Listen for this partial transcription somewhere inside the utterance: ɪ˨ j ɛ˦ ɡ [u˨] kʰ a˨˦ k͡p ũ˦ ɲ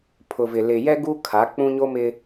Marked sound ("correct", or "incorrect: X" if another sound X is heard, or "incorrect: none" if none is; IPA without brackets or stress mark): incorrect: u˦